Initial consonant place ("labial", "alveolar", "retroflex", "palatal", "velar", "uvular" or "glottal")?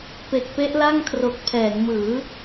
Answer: labial